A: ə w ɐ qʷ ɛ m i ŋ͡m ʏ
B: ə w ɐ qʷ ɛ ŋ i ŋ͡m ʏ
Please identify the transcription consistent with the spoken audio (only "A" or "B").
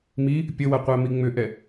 A